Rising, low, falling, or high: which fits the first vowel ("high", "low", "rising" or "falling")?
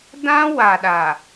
high